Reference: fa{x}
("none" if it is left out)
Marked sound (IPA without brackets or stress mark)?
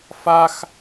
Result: x